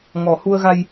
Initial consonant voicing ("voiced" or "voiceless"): voiced